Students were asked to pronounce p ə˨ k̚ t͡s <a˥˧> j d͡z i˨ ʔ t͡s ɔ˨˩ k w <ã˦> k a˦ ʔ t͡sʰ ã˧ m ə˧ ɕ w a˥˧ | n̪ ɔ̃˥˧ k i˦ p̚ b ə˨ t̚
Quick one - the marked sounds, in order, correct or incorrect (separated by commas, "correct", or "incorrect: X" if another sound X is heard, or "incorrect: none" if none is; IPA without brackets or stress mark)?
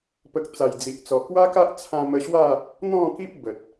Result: incorrect: a˨˩, incorrect: a˦